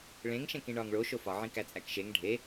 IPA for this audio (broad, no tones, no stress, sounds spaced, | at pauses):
ɭ ẽ ŋ ʃ ẽ k ĩ ɳ ɒː ŋ ɭ o ʃ o f ɒ ʕ ĩ k æ t͡sʼ æ k ʃ e ŋ ɖʱ e